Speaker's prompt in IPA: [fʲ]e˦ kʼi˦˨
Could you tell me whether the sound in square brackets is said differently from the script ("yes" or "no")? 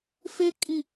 yes